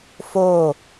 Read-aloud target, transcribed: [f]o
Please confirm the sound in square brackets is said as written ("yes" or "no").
yes